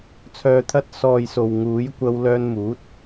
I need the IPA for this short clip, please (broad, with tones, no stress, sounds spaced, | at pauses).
t͡sʰ œː˨ t̪ʰ ɐ˧ t̚ s ɔː˨ j s o˨ w ŋ uː˨˥ j kʷ ɐ˧ w l œː˧ n m uː˨˥ t̚